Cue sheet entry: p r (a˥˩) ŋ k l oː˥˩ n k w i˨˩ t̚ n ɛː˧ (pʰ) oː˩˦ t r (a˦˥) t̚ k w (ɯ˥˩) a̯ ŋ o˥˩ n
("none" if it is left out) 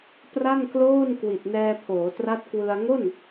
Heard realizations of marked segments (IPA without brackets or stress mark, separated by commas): a˥˩, pʰ, a˦˥, ɯ˧